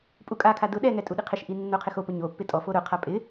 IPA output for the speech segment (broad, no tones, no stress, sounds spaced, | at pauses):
pʼ u kʼ a kʰ a d ʊ ɗ ɛ ŋ ɛ tʼ u ɗ i qʰ ɪ ʃ ʔ i nː o qʰ ɪ x o p ʊ ɲ o pː ɪ tʼ ɔ f o ɾ ʊ qʰ a pʼ ɪ